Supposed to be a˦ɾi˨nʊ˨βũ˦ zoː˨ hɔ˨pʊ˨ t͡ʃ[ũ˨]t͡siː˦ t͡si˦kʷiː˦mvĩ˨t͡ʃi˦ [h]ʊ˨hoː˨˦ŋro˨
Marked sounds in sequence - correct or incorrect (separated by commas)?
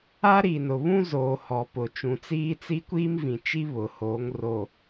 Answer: correct, incorrect